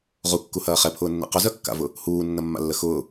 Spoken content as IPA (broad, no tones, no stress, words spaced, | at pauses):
ʁukːuhɐː χɛpʰʊːnːɛ̰ qʊzœkːa̰vʊ | huːnːɐmːa̰lːə xʊː